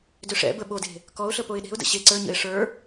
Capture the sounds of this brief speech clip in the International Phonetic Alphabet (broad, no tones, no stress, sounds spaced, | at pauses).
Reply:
d ʏ ʂ ɛ̰ b ə ɓ o d e̤ | k ɔ ʊ̯ ɬ ə p o ɪ̯ ɗ e̤ ʊ̯ d ə̰ ɕ e ǀ ə˞ ɲ ə̰ ɪ̯ ʂ ə˞